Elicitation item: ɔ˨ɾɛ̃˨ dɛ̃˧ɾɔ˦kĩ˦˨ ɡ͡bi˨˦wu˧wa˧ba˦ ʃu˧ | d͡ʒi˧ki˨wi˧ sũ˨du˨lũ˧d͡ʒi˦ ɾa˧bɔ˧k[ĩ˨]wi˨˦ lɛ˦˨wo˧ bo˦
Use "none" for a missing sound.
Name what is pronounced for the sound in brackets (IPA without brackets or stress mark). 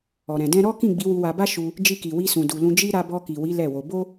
i˨